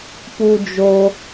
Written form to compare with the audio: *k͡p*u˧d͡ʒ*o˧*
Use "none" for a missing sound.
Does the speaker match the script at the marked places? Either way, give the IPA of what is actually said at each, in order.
p, o˧

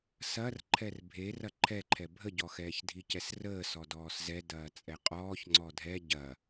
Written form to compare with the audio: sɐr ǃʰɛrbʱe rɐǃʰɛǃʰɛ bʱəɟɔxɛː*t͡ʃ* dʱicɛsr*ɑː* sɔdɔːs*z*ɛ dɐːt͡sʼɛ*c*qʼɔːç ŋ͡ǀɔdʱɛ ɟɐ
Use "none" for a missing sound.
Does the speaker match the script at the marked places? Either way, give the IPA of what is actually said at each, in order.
ç, əː, z, none

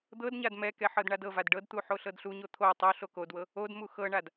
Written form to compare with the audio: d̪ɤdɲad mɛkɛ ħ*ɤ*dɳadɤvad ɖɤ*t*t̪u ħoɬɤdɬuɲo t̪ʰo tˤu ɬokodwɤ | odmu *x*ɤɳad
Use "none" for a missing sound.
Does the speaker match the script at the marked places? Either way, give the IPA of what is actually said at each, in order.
ɤ, d, x

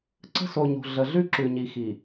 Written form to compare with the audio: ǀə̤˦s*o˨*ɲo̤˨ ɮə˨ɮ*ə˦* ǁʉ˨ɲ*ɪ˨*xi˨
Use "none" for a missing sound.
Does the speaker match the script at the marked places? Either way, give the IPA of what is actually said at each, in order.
o˨, ʉ˦, i˨

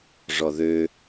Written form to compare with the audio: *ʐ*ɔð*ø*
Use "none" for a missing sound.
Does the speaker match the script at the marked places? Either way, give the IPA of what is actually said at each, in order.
ʐ, ø

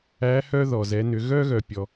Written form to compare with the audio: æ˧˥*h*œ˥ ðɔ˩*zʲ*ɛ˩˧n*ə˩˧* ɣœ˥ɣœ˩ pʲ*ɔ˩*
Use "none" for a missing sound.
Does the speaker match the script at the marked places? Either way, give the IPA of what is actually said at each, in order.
h, z, ʏ˩˧, ɔ˩

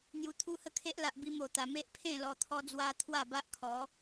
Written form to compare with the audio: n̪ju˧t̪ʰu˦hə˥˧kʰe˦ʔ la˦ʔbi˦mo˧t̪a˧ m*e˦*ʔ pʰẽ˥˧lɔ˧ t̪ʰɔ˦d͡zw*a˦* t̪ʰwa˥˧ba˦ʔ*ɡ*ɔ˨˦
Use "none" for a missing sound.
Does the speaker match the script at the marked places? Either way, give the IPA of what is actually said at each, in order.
e˦, a˦, kʰ

